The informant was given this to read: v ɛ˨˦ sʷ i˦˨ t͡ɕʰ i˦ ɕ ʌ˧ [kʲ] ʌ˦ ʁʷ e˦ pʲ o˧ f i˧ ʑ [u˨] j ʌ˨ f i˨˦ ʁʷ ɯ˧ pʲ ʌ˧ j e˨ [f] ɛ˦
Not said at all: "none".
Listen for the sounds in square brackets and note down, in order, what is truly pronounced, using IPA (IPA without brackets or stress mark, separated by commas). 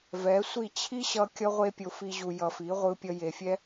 kʲ, u˨, fʲ